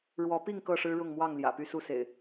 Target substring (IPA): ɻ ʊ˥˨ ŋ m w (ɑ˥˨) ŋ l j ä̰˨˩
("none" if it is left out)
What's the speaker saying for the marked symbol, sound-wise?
ɑ˥˨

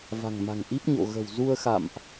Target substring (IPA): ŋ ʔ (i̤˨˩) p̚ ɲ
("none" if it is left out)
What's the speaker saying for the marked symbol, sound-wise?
i˦˥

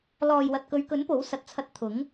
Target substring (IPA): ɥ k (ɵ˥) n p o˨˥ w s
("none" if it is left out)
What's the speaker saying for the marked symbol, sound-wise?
ɵ˨˥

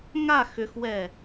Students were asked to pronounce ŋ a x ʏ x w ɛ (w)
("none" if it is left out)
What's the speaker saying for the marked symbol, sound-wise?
none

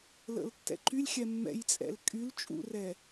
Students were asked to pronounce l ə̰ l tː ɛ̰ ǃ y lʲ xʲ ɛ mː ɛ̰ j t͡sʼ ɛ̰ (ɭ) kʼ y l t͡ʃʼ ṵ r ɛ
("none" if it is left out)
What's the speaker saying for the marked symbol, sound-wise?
l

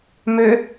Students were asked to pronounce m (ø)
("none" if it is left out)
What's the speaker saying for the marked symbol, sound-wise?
ø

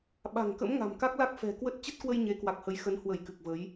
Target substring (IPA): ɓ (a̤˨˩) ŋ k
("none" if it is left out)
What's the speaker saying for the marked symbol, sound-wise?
a̤˨˩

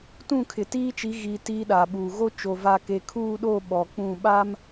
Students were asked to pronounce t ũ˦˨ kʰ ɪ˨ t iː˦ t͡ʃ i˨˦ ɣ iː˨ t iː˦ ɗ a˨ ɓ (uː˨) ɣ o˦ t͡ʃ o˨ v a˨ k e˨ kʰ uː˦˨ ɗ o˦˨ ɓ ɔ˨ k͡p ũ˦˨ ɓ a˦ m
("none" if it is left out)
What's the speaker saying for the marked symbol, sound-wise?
uː˨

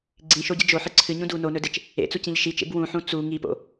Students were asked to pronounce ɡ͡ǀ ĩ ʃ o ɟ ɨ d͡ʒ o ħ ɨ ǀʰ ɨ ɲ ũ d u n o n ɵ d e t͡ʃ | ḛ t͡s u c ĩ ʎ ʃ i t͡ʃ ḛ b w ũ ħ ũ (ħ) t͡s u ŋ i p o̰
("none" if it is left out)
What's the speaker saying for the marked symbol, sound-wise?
none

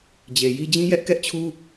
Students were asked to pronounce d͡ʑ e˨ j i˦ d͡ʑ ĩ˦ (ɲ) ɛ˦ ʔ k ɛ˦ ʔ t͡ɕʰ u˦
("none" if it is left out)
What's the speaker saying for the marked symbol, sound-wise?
j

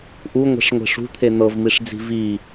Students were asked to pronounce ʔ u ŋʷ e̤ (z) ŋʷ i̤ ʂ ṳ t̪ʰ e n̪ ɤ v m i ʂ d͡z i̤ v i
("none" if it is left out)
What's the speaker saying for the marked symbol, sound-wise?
ʂ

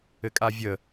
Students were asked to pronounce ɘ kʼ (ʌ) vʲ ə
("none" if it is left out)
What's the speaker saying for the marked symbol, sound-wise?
a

